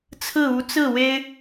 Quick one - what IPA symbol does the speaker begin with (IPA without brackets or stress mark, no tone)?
t͡sʰ